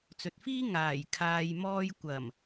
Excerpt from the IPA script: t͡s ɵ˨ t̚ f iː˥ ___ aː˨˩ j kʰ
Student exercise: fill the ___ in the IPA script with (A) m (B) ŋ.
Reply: B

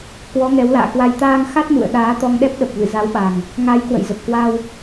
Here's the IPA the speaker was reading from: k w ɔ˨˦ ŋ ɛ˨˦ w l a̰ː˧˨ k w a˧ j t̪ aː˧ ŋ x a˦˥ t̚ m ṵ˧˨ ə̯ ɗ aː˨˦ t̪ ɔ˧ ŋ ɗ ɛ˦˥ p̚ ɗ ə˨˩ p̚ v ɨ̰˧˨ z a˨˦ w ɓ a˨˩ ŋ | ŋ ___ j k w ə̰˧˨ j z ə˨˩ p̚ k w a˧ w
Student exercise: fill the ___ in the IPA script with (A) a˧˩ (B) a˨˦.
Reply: B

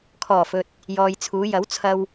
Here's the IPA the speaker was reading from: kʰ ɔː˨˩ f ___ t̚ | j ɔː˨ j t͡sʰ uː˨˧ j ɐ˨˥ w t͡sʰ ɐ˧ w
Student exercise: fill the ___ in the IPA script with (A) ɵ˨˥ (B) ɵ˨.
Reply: B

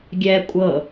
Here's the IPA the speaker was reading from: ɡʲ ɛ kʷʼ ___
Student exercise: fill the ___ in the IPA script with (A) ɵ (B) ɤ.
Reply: B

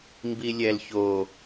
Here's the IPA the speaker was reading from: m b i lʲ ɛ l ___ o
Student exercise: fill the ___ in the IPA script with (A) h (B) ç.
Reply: B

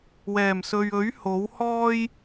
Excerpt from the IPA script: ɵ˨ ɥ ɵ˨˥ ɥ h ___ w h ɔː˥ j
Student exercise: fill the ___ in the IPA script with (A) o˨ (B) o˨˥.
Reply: B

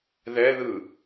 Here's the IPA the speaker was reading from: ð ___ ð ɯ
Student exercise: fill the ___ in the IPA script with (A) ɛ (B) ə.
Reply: A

